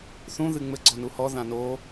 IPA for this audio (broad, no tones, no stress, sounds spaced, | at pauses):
θ ũ ð ɨ ŋ͡m ɘ ɡ͡ǀ ɔ n u h ɔ ð ã n o